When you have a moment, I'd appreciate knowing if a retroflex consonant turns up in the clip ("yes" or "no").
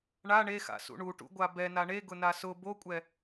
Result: yes